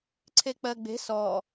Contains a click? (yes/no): yes